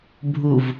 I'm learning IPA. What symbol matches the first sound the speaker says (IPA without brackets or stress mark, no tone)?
bʱ